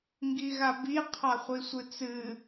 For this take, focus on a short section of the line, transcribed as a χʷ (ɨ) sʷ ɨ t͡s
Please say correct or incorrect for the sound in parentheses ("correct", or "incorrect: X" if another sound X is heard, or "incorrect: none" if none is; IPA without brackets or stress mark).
incorrect: i